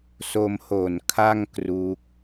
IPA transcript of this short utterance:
s o˧ m h o˨˩ n kʰ a˥˩ ŋ k r uː˦˥ k̚

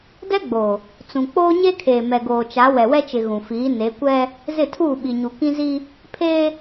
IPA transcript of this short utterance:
d ɛ˦ ɡ͡b o˨ | t͡s ũ˨ k͡p oː˦ ɲ e˦ kʰ eː˨ m ɛ˨ ɡ oː˨ t͡ʃ a˨˦ w ɛ˨ w ɛ˦ t͡ʃ ɪ˨ ɣ ũ˨ f iː˨˦ n e˨˦ kʷ ɛ˦ | z ɪ˦˨ tʰ uː˦˨ ɓ i˨ ɲ u˨ k ĩ˦ z i˦ | pʰ eː˦

